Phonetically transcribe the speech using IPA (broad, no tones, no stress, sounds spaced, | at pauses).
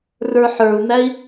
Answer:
r ə˞ ħ ə˞ u̯ n̪ æ i̯